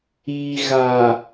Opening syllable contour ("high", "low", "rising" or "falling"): low